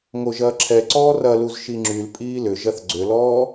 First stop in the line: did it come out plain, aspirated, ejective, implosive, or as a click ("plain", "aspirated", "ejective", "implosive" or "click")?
click